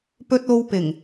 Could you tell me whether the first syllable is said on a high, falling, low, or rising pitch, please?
low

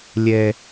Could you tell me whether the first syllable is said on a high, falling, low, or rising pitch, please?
low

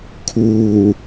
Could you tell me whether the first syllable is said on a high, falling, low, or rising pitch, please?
low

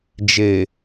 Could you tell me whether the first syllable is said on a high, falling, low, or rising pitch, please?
low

